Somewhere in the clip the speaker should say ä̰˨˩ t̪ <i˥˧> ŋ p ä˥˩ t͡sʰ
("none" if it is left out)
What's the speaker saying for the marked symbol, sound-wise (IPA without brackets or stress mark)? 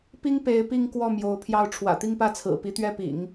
i˥˧